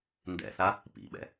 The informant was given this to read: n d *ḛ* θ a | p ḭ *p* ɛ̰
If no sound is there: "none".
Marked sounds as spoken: ɛ̰, ɓ

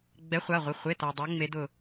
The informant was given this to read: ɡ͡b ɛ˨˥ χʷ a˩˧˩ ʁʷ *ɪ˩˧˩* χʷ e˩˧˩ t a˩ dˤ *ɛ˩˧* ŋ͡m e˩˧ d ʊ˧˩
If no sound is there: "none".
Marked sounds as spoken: ɪ˩˧˩, ɛ˩˧

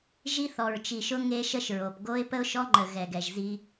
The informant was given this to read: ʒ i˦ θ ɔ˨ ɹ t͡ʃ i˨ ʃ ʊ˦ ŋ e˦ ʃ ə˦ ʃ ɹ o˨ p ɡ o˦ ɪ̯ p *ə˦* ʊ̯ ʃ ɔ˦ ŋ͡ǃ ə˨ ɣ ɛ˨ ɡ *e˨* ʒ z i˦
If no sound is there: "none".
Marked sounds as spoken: ə˦, ɛ˨

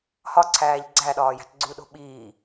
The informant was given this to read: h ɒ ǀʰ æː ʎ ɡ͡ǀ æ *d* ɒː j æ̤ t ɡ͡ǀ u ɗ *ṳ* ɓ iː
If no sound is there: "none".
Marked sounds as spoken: ɗ, o̤

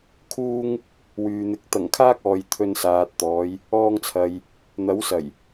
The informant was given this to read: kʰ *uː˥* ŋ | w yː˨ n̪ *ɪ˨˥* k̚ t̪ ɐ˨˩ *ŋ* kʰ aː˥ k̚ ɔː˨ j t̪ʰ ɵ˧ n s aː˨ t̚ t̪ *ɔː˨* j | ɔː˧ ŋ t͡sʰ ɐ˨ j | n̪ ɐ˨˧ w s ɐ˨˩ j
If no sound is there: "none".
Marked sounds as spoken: uː˥, ɪ˨˥, ŋ, ɔː˨˧

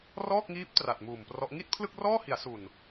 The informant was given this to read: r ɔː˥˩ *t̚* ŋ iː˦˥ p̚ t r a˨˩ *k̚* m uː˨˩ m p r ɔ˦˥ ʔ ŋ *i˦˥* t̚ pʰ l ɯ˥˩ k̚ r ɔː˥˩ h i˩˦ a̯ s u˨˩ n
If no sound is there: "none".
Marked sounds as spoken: k̚, t̚, i˥˩

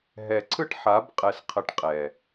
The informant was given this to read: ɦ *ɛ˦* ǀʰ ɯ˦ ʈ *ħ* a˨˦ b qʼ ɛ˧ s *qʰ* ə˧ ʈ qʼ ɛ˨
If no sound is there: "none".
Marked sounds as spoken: ɛ˨, ħ, qʰ

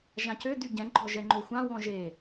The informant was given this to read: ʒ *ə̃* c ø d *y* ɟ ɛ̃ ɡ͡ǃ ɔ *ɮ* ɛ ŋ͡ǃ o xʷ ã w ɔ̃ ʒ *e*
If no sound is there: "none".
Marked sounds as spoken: ã, y, ʒ, e

